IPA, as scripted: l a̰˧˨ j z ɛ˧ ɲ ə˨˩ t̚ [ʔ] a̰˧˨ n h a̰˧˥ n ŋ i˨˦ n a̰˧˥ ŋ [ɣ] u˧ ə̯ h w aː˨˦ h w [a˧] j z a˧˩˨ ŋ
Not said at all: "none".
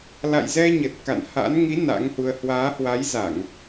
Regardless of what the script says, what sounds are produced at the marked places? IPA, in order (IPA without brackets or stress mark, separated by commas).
k, h, a˨˦